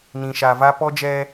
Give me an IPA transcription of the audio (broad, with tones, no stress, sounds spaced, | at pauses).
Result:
n ĩ˨ ʃ a˨ v a˦ p ɔ˦ d͡ʒ ɛ˦